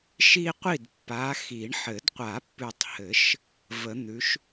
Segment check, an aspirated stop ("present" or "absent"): absent